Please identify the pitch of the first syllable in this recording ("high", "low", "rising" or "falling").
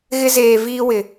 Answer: high